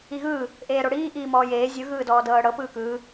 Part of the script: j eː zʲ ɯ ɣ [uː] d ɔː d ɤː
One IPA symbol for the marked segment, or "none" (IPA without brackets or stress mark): ɯː